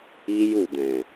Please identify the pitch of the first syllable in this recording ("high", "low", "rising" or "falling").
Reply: high